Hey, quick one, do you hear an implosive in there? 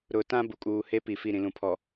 no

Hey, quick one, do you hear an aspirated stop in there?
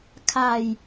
yes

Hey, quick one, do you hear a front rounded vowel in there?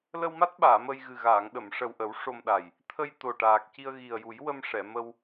no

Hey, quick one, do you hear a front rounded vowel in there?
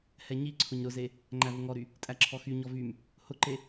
yes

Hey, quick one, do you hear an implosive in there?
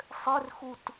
no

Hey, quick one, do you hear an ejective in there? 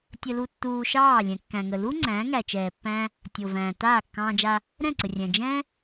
no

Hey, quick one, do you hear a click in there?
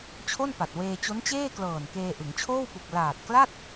no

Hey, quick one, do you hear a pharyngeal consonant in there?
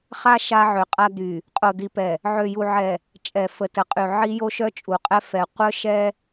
yes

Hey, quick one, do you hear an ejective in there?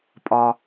yes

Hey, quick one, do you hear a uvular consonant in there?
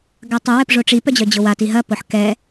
no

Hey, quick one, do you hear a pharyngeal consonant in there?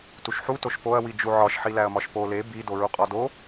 yes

